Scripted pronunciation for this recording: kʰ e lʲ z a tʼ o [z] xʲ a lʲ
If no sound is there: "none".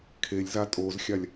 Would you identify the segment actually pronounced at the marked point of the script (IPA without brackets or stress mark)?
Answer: z